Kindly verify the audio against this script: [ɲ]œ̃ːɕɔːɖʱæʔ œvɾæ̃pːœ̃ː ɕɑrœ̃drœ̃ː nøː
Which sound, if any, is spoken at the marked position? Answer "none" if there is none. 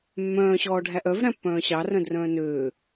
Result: mː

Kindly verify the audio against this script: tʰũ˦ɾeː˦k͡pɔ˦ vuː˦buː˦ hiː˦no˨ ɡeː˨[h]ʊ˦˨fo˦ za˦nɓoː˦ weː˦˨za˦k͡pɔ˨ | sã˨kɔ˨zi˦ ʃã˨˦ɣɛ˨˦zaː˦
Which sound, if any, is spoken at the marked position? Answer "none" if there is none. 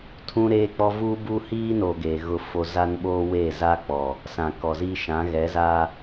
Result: ɣ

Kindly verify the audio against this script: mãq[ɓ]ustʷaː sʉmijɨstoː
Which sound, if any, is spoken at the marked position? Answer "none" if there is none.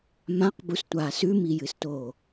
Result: b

